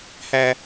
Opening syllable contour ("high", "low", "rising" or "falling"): high